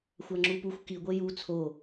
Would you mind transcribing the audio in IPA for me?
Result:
xʷ a ŋ͡ǁ u p u xʷ k i ɡʷ e j u t͡sʰ o

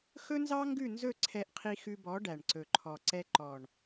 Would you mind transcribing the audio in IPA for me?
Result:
x ɵ˦ n z ɑ˦ ŋ ɡ ʉ˦˨ n z ɵ˦˨ ǀʰ ɛ˧ ʔ qʰ i˧ x ʉ˧ b ɔ˨˦ ɖ æ˨ ɳ ǀ ɵ˨ ǃʰ ɔ˨ ǀ ɛ˧ ǃ ɔ˨ ɳ

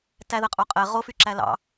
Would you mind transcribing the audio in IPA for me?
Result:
t æ ð ɛ qʼ o qʼ ɛ ʁ o f y ǁ æ l ɑ̰

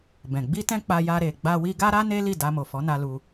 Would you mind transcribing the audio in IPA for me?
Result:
b ɛ̃˨ ɡ͡b i˧ t ɛ̃˧ k͡p a˧ j a˧ ɾ e˨ ɡ͡b a˧ w i˧ ɡ a˦ ɾ a˦ n e˦ l i˦˨ d a˧ m o˨ f ɔ˨˦ n a˧ l u˧

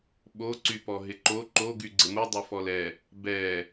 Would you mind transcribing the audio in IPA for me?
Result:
ɓ o ǀ y p ɔ ɦ ɪ ǃ o ǃ o ɡ y ɡ͡ǀ ɪ m u dˤ u f ɔ l ɛ | b ɛ

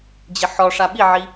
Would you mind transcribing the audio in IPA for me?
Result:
d͡ʑ ɪ ħ ɔ ʂ a ɓ i ʕ i

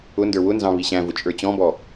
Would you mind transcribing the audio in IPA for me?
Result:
ʊ n d ə˞ w ʊ n z ɑ̃ β i ɕ æ̃ v ʊ t͡ʃʼ ə˞ t͡ɕ ɔ̃ b ɔ

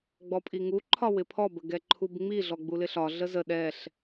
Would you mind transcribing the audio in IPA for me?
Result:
ɡ͡b ɔ pʼ i ŋ u ǃʰ ɒ w ɪ pʰ ɔ b ə ɡ ɛ ǃʰ u b ŋ͡m i ɮ ɔ ɡ͡b u l ɪ ɬ ɒ ɮ ə z ə ɗ ɛ ɬ

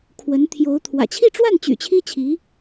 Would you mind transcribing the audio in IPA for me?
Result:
kʰ w ə˧˥ n t̪ʰ j o˧˥ ʊ̯ t̪ʰ w ä̰˨˩ t͡ɕʰ i˥˧ ʈ͡ʂ w a˥˩ n t͡ɕ y̰˨˩ t͡ɕʰ i˥ t͡ɕʰ i˧˥

